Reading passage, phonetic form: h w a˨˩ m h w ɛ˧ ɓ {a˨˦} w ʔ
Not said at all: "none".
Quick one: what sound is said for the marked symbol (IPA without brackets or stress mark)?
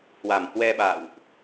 a̰˧˨